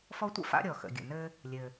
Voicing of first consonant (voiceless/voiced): voiceless